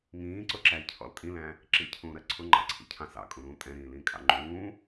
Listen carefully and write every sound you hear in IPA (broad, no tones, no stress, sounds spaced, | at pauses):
ŋ ĩː ǀ ʊ ǁ æ i̯ cʰ ɔ̰ l tʼ ĩ l æ̃ | ǁ ḭ cʰ ũː ɾ ɜ ǀʰ ʊ ŋ͡ǃ ɑ̰ ǀʰ ḭ cʰ ɑ̃ s ɑ̰ kʼ ũ ɾ ũː tʼ ɛ̃ ɾ ĩː l ĩː kʼ ɑ̰ ŋ͡ǃ ũː